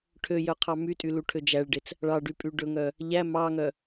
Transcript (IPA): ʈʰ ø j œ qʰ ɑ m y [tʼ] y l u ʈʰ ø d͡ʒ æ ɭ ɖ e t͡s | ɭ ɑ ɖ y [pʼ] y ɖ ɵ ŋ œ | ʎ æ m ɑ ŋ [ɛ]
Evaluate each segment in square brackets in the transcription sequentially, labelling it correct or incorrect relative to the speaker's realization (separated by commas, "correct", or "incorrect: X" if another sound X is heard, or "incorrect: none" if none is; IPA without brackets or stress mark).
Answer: correct, correct, incorrect: œ